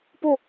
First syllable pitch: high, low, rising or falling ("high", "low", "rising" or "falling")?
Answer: falling